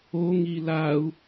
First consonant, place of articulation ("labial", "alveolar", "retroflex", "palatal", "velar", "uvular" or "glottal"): velar